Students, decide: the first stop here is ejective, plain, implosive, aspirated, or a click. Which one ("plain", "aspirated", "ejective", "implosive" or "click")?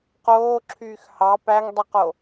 plain